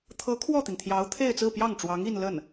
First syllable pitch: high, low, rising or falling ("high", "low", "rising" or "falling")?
rising